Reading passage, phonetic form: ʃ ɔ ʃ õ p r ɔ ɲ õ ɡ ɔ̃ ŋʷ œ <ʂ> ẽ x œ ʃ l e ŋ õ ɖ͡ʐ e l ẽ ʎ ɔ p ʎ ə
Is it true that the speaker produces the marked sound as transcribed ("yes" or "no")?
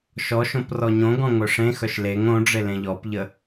yes